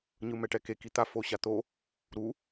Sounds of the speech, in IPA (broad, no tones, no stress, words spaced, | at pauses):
ɲɯmɛʈɛke kit̪a foɕat̪o | ɾu